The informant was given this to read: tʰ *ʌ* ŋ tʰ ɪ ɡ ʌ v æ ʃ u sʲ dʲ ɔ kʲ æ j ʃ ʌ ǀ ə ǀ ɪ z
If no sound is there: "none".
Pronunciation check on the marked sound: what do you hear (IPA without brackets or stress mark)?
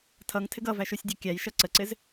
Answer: ʌ